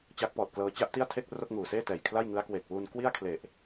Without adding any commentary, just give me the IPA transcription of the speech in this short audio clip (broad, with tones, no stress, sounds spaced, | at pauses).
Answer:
t͡ɕ a˦˥ k̚ p ɔː˨˩ t̚ k l ɤː˧ t͡ɕ a˥˩ ʔ t i˥˩ a̯ tʰ e˥˩ k̚ r o˥˩ k̚ ŋ uː˨˩ s eː˥˩ t ɛː˨˩ j kʰ l a˥˩ j ŋ ɯ˦˥ a̯ k w e˨˩ k̚ w u˧ n k w i˥˩ a̯ kʰ l e˨˩ ʔ